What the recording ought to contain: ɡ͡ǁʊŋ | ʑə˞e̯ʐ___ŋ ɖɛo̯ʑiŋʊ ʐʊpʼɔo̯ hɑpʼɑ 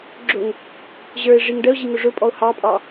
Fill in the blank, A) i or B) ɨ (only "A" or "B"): A